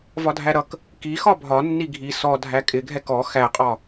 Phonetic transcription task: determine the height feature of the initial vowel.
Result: low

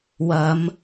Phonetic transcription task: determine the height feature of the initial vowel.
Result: low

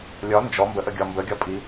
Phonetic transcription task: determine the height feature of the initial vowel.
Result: low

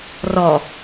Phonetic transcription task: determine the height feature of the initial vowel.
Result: mid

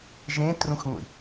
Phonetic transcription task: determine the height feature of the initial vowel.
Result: mid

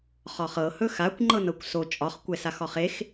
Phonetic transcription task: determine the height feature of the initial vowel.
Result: low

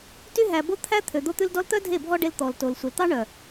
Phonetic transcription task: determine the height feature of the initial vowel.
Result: high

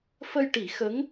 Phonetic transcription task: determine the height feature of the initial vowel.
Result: mid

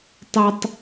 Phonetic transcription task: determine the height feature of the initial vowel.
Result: mid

